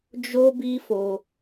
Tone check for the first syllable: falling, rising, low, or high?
high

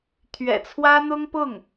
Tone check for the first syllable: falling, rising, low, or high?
low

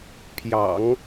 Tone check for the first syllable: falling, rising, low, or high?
low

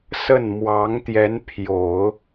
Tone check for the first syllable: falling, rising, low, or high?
falling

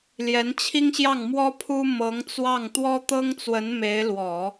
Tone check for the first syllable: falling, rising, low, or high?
rising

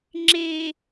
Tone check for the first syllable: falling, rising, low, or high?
low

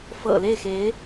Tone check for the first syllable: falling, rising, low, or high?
low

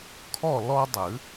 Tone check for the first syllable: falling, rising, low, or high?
falling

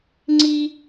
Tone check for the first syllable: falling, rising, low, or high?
high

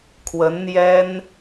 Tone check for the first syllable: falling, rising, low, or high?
rising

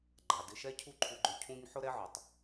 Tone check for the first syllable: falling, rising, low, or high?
low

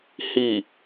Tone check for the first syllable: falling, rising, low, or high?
low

